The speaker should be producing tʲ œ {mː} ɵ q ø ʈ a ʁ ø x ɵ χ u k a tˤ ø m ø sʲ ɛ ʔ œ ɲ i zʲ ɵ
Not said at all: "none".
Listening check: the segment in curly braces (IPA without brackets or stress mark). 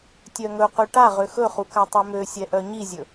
ŋ